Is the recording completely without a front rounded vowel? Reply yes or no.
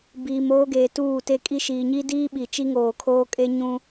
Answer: yes